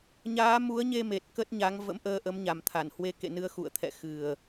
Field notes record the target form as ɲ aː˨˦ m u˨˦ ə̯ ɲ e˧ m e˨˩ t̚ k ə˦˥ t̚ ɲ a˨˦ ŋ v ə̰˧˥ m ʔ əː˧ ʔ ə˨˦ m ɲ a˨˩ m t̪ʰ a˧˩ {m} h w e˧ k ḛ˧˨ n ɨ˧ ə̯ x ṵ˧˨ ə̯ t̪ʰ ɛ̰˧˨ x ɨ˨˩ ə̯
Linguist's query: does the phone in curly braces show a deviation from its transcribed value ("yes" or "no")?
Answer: yes